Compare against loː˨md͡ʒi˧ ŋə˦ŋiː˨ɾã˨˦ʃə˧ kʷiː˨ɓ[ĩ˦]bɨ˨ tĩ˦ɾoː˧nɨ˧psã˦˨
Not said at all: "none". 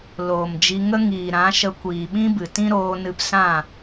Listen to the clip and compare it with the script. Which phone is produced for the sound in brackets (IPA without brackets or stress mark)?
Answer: ĩ˦